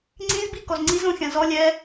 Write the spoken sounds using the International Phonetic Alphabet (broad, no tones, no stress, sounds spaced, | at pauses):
ŋ͡ǀ ĩ z b i k ɔ z ŋ͡ǀ i z õ xʲ ã z ɔ lʲ ɛ